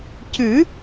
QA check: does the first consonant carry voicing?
no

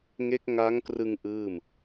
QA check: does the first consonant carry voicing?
yes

